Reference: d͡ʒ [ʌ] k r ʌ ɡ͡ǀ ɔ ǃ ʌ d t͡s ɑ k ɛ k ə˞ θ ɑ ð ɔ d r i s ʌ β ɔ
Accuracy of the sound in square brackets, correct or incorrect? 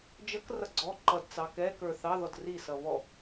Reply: correct